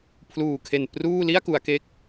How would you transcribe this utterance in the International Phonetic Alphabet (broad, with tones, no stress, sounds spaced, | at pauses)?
pʰ l uː˨˩ kʰ e˨˩ n p r uː˥˩ l i˥˩ a̯ k u˩˦ a̯ k e˦˥ k̚